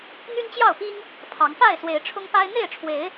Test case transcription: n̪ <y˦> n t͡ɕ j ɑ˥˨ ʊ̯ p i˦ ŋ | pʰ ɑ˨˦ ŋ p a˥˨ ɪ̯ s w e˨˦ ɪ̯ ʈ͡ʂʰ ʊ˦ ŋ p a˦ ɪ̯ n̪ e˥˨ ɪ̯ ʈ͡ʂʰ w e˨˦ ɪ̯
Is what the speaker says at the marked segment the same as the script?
yes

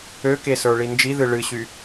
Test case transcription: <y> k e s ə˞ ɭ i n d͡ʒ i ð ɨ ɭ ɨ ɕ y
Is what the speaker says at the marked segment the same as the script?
no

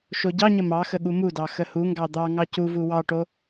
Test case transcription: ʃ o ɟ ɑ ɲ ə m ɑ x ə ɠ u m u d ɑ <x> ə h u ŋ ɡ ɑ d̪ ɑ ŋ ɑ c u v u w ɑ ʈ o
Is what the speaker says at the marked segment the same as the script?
yes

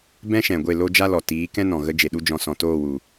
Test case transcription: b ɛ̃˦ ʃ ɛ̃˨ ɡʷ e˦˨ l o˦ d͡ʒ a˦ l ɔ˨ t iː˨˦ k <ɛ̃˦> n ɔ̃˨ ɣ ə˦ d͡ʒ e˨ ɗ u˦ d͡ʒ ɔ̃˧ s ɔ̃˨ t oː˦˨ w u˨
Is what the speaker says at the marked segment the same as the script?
yes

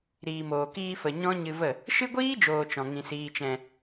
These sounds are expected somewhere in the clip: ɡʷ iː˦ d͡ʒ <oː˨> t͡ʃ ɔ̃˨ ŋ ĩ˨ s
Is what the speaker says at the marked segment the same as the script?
yes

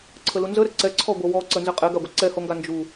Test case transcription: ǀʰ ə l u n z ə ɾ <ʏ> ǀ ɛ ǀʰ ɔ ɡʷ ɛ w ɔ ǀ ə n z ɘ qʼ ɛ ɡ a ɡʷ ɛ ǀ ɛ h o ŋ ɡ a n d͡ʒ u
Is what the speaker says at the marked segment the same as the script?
no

